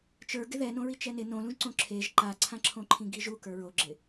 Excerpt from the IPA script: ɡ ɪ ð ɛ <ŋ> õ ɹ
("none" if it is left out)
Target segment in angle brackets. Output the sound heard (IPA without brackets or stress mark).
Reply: n